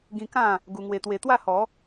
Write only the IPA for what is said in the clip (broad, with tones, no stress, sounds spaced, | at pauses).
ɡ ĩ˧ k ã˥˧ | ɡ u˧ ŋ w e˧ t̪ w e˧ t̪ w a˥˧ h ɔ˨˦